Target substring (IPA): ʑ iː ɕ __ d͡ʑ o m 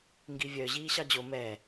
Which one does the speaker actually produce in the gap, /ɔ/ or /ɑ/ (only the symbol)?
ɑ